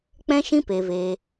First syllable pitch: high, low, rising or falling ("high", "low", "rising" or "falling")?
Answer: high